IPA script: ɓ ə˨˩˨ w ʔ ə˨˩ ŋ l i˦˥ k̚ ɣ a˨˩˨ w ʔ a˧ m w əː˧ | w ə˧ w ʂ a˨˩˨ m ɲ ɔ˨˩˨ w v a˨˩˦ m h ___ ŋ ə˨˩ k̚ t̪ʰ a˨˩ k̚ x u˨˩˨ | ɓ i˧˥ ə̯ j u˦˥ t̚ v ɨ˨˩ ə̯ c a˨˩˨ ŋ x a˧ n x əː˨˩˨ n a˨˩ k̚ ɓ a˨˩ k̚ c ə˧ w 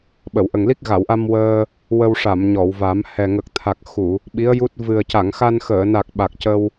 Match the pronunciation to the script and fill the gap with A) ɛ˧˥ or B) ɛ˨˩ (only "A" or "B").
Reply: B